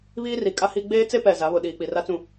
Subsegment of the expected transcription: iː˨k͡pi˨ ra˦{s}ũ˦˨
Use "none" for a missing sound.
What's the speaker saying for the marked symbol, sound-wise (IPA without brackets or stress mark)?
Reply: t͡s